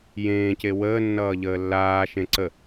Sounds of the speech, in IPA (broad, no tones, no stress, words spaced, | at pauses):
jẽːce wəːnːʌːʎəː lːaːʃẽ ǀə